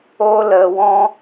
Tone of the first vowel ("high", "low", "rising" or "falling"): high